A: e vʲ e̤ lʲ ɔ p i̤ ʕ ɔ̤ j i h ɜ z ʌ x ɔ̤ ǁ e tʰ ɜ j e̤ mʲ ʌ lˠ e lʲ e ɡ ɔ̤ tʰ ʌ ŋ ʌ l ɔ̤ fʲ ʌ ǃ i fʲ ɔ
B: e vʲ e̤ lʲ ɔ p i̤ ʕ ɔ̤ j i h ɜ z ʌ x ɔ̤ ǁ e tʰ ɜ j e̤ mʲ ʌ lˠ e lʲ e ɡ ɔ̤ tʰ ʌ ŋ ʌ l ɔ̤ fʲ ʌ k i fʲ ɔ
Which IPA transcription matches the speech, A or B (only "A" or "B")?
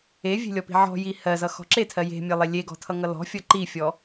A